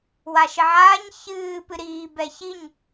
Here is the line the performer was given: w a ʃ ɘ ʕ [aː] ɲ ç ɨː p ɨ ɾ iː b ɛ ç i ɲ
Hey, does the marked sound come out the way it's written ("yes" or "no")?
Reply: yes